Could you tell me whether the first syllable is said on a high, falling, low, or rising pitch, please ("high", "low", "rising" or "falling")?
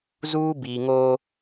high